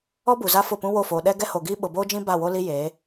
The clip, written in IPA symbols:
ɔ˦ b u˨ z a˦ f ʊ˦˨ p ũ˦ w o˦˨ f oː˨ ɗ ɛ˦ ɡ ɛ˦ h o˨ ɡ iː˦ ɓ ʊ˨ b oː˦ d͡ʒ ĩ˦ b a˦˨ w o˦ l i˦ j eː˨˦

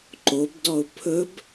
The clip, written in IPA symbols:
ǃ o b d ɔ ʊ̯ pʰ ɵ b

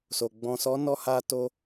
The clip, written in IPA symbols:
s o˨ ɡ͡b ɔ̃˨ s ɔ˨˦ n ɔ˧ h a˧ t o˧

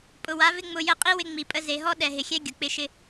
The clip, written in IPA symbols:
pʼ ʊ˨ w a˨˦ v ɪ˦ ŋ͡m ʊ˧ j ə˦˨ qʼ i˦ w ɪ˧ ŋ͡m i˨ pʼ ə˧ z e˨ ɦ ɔ˦ ɗ ɛ˨ ɦ ɪ˨ xʲ ɛ˦ ɡʲ ʊ˨ k͡p ɪ˦ ʃ ɪ˦

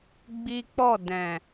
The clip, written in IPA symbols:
ɡ͡b i˦ k͡p ɔ˦˨ d ɛ̃˨

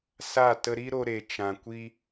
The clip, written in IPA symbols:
s a˦˨ t ə˧ ɾ i˦ ɾ o˧ ɾ e˨ t͡ʃ ã˨ kʷ i˦

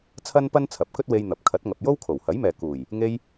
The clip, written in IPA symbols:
t͡sʰ ɐ˥ n p ɐ˥ n t͡sʰ ɐ˨ p̚ k ɵ˥ t̚ w e˧ j n̪ ɐ˨ p̚ kʰ ɐ˨˥ t̚ ŋ ɐ˨ p̚ j o˥ w kʰ o˨˩ w h ɐ˨˥ j m ɛː˨ k uː˨˩ j | ŋ e˧ j

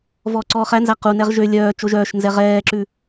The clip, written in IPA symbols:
v ɔː ǀ ɔː χ æ n z æ q u n ɛ ʁ ʒ ø lʲ œː t͡ʃ o ʒ œː ʃ n z ɛ ʁ ɛː ǁ ʉ

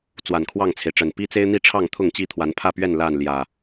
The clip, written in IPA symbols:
t͡s w a˨˩ n kʰ w ɑ˥˨ ŋ t͡sʰ e˩ ɪ̯ ʈ͡ʂ ə˨˩ n p i˦ t͡s e˦ ɪ̯ n̪ i˥˨ ʈ͡ʂʰ ɑ˥˨ ŋ t̪ʰ ʊ˥˨ ŋ t͡ɕ i˥˨ t̪ʰ w a˨˦ n pʰ ä˥˨ p ɥ ɛ˥˨ n l a˥˨ n l j ä˨˩

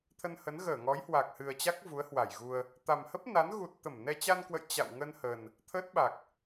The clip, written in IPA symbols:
t̪ʰ ə˧ n h ə˨˦ n ɣ əː˧˩ ŋ ɔ˨˦ j h w a˨˩ k̚ h ɨ˨˩ ə̯ t͡ɕ a˦˥ k̚ v u˨˦ ə̯ h w a˧˩ j ɣ u˧ ə̯ | t̪ a˨˩ m h ə˦˥ p̚ n a˨˦ n ɣ u˨˩ t̚ t̪ ə˧˩ m n ɛ˧ t͡ɕ a˧ n k w ə̰˧˨ j t͡ɕ a̰˧˨ w ŋ ə˧ n h ə˨˩ n | t̪ʰ əː˦˥ t̚ ɓ a˨˩ k̚

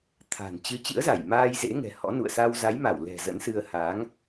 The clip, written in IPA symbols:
t̪ʰ a̤˨˩ n t͡ɕ ɨ˨˦ t͡ɕ ɨ̰˧˥ ə̯ z a˧˩ j m aː˧ j z ḛ˧˥ ŋ ɛ̤˨˩ h ɔ̰˧˥ n ṵ˧˨ ə̯ s a˧ w z a˨˦ j m a˧˩ w l ɛ̤˨˩ z ə̰˧˥ n s ɨ˧ ə̯ h aː˨˦ ŋ

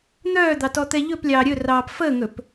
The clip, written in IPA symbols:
n̪ œː d̪ ɑ t ɔ t̪ ɛ ʎ ɵ p lʲ ɑː ɾʲ ɵ r ɑː p f əː ŋ ɵ p

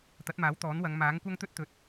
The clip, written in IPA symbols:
t̪ ɐ˨˥ t̚ m aː˨˥ w t̪ ɔː˨˥ n w ɐ˨˧ ŋ m aː˨˥ ŋ kʷ ɐ˥ ŋ t̪ ɵ˥ t̚ t̪ ɵ˨ t̚

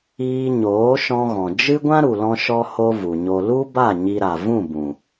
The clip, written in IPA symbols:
iː˧ ɲ oː˨˦ ʃ ɔ̃˧ ɣ ɔ̃˨ d͡ʒ ɨ˦ ɡʷ ã˦ ɾ u˨ l ɔ̃˧ ʃ ɔ˧ h o˦ v u˨ ɲ o˧ l u˦ b a˦˨ ɲ i˧ ɾ a˨ v ũ˦˨ b ũ˨

